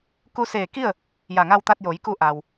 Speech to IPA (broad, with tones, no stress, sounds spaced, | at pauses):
k u˧ s eː˧˩ k i˥˨ ə̯ | j a˧˩ ŋ a˧ w t̪ a˧ t̚ j o˩˧ j k u˧ ʔ a˩ w